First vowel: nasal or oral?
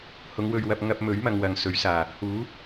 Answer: oral